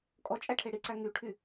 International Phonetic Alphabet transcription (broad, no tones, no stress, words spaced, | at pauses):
kʼɔt͡ʃʼæʈʰe ɽiǀæ ŋyʈʰy